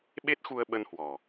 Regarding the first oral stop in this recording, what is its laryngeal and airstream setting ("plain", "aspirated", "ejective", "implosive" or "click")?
implosive